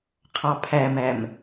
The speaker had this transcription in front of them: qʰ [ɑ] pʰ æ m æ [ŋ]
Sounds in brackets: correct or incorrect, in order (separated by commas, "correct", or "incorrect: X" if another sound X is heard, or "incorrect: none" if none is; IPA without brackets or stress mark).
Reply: correct, incorrect: m